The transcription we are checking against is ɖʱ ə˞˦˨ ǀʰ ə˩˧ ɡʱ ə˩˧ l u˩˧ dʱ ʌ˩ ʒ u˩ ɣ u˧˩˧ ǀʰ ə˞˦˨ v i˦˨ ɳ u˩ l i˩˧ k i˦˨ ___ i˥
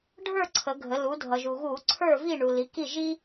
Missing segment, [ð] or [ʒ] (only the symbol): ʒ